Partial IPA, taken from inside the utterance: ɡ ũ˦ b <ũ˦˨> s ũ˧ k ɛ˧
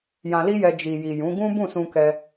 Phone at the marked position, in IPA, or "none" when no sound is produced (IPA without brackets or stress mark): ũ˦˨